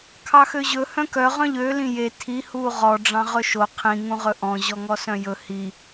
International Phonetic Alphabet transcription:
kʰ ɑ x ø ʑ ɵ h œ̃ k œ ʁ œ̃ ʎ ø l ĩ j e tʰ i h uː ʁ ɔ ɖ͡ʐ ɑ̃ ʁ ɵ ʃ o qʰ ĩ ŋ ũ ʁ ɵ ʔ ɔ̃ ʑ ɔ ŋ ɔ s œ̃ j ɵ h i

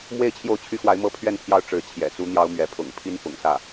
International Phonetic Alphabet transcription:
m w e˥˧ ɪ̯ t͡ɕʰ j o˥˩ ʊ̯ t͡ɕʰ y˥ x w a˧˥ ɪ̯ m ɤ˥˧ pʰ ɥ ɛ˥˧ n pʰ j ɑ˥˩ ʊ̯ ʈ͡ʂ ɻ̩˧˥ t͡ɕʰ j ɛ̰˨˩ t͡s u˥ n̪ j ɑ˥ ʊ̯ m ɥ ɛ˧˥ pʰ ʊ̰˨˩ ŋ pʰ i˥ n f ʊ̰˨˩ ŋ s ä˥˩

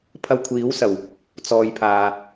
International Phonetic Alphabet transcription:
pʰ ɐ˧ w kʷʰ iː˨˥ w s ɐ˨˩ w | t͡s ɔː˨ j pʰ aː˨

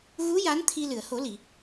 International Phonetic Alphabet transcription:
ɣ u˧˥ j a˧˥ n t̪ʰ i˧ l ɨ˨˩˨ ə̯ h o˨˩˦ l i˨˩˨

